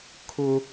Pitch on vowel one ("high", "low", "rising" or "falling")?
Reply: high